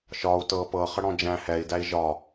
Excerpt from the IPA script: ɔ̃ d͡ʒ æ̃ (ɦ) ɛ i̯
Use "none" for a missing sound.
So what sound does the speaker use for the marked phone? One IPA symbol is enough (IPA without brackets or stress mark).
h